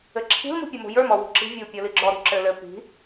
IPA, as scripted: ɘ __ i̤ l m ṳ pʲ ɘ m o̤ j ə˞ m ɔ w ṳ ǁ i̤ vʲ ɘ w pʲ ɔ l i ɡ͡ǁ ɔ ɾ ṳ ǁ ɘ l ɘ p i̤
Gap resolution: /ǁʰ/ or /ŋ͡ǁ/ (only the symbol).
ǁʰ